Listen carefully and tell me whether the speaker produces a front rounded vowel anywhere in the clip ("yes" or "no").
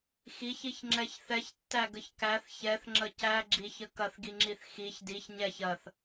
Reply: no